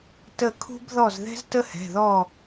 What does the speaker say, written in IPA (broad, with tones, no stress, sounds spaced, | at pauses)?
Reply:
t ə˧˩ kʰ ṳ˥ b ð ɔ˥˨ z ð ɛ̤˥ z t ə˥ h ɛ̤˩˧˩ ð ɔ˥˨